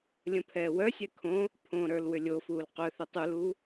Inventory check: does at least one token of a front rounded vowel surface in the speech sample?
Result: yes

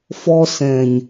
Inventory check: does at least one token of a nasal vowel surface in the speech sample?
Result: yes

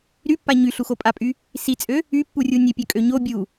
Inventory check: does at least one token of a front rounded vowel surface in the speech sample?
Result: yes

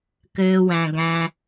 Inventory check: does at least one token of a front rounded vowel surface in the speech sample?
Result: yes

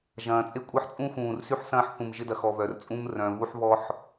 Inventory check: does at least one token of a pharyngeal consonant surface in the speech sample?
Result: yes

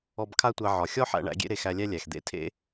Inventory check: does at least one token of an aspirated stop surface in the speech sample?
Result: yes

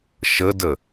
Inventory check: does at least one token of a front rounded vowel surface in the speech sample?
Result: no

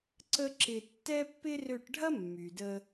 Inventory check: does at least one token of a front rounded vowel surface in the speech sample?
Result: yes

